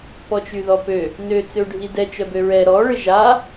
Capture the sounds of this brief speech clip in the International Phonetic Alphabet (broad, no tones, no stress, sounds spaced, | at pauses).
p ɔ t͡ʃ y ð ɔ p ø | n ø t͡s ø ɖʱ i d ɛ t͡ʃ œ b ø ɹ ɛ ɾ ɔ ɭ ɪ ʒ a